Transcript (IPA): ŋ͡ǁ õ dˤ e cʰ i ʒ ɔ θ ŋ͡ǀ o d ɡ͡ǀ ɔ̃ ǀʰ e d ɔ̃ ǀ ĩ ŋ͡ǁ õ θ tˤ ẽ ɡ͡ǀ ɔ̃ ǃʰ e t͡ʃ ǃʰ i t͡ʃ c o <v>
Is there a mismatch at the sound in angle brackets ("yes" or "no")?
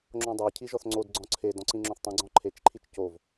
no